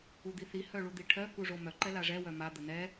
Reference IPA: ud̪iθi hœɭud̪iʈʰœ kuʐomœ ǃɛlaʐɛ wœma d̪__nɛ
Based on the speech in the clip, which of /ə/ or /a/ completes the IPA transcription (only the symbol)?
ə